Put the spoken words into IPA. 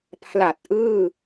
pʰ l a˨˩ t̚ ʔ ɯː˥˩

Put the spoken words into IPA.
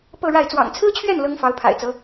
p ɤ˥˧ ɻ a˥˩ ɪ̯ t͡s w ɑ̰˨˩ ŋ t͡sʰ ɹ̩˥ t͡ɕʰ ɥ ɛ˥˩ n l ɤ˥ ŋ f ɑ˧˥ ʊ̯ pʰ a̰˨˩ ɪ̯ t͡s ɤ˧˥

